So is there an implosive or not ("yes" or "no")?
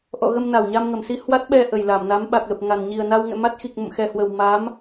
yes